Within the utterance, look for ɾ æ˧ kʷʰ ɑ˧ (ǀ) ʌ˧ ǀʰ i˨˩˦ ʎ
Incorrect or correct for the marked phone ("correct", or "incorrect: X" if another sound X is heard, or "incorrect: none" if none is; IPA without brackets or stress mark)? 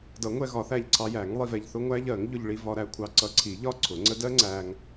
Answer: correct